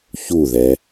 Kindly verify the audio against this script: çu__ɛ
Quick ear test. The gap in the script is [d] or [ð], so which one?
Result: ð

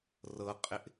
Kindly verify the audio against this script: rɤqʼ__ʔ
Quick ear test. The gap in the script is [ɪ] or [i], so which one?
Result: ɪ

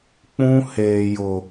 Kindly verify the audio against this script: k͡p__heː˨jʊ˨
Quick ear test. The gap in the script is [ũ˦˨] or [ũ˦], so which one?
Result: ũ˦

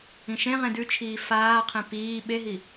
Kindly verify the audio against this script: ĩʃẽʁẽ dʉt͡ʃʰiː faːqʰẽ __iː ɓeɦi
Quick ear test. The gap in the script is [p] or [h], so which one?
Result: p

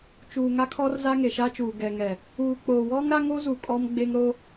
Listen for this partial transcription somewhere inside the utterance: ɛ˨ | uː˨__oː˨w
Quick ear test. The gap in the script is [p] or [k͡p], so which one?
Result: k͡p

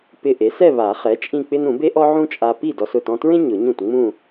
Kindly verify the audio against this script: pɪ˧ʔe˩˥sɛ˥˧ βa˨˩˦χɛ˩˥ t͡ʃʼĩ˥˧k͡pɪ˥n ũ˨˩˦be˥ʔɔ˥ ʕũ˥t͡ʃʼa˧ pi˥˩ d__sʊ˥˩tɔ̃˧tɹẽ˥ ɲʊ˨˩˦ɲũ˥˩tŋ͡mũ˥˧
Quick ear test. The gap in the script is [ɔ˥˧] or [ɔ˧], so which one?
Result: ɔ˧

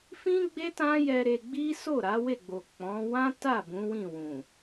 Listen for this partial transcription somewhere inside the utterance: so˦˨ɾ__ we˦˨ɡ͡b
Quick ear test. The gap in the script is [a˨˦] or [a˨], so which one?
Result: a˨˦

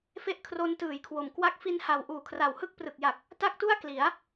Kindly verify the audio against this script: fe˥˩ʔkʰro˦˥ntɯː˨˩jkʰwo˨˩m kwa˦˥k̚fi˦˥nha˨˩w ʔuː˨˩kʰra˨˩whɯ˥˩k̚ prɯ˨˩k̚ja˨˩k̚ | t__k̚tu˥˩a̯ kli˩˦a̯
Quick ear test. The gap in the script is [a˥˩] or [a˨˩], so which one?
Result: a˥˩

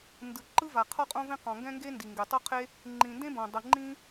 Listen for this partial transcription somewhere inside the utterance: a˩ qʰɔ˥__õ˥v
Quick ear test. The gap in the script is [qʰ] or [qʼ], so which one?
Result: qʼ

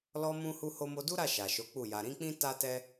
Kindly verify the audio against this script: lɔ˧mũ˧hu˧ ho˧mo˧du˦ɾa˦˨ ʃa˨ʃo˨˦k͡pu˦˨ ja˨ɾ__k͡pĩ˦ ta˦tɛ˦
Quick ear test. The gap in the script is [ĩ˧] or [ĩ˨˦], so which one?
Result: ĩ˨˦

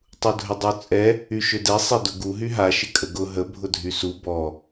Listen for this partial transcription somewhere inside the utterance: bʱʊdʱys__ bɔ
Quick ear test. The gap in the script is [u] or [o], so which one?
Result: u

